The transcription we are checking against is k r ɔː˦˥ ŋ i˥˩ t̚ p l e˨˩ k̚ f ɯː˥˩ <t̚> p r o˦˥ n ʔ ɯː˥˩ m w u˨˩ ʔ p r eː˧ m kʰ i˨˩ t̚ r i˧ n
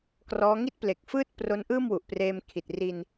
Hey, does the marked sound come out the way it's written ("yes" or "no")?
yes